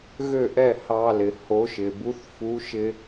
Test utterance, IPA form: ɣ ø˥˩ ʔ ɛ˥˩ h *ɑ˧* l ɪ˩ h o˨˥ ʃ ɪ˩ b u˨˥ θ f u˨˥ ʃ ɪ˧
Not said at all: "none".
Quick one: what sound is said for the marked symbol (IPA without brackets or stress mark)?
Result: ɑ˧